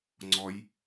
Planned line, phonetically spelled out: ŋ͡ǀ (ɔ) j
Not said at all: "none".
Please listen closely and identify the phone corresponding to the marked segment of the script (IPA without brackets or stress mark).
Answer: ɔ